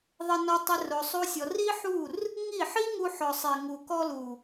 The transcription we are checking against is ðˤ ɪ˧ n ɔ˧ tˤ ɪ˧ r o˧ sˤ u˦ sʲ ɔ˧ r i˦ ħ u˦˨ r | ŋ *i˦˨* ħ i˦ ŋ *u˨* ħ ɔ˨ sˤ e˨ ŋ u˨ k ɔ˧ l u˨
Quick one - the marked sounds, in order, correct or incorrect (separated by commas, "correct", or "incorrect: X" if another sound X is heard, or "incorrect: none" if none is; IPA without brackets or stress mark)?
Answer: correct, incorrect: u˧